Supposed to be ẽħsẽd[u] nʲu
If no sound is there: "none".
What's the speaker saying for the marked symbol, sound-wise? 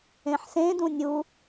ũ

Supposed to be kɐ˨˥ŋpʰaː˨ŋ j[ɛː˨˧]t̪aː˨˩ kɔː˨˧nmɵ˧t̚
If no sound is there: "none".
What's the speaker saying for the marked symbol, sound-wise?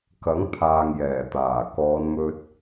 ɛː˨˩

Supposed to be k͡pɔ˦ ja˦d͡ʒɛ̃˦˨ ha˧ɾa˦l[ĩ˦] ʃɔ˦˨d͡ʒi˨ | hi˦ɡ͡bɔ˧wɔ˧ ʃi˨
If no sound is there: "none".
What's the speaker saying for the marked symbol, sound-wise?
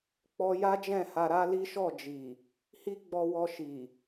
i˦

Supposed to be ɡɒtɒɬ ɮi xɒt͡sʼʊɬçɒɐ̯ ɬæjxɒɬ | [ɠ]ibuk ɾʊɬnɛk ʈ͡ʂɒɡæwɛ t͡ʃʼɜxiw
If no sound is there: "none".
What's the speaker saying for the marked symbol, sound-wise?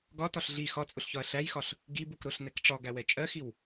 ɡ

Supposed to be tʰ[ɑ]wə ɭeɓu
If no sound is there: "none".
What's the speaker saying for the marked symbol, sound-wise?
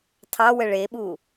ɑ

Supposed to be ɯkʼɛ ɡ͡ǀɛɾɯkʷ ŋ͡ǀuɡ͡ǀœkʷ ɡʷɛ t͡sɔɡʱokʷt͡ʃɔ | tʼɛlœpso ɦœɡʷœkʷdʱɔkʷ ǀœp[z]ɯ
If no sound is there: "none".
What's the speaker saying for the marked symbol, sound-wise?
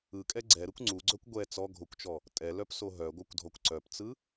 t͡s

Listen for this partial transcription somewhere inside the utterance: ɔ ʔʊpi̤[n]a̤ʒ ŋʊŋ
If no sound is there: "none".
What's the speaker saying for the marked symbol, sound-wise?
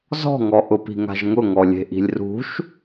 ŋ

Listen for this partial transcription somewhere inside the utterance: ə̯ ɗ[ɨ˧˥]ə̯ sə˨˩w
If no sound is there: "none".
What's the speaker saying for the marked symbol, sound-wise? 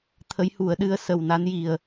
ɨ˧˥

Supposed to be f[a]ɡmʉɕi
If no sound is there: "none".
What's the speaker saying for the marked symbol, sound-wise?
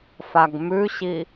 a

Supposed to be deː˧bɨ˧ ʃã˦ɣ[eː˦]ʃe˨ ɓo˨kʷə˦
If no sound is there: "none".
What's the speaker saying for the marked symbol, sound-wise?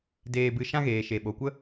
eː˨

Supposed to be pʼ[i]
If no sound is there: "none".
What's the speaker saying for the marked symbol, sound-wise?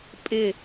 ɪ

